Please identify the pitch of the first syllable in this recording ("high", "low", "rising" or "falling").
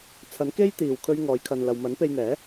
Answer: rising